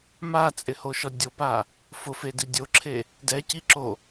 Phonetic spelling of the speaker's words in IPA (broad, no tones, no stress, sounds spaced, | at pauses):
m a t͡sʼ ɪ h o ʃ ɔ dʲ o p a | f ʊ f e d i dʲ o ǁʰ e | d ɛ c i ǁ o